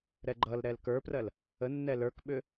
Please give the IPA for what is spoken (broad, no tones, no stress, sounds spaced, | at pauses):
ɾ ɛ ɡ͡ǃ ʌ l ɾ ɛ l k ə˞ p r ɜ l | ə nː ɛ l ə˞ k ɓ ʏ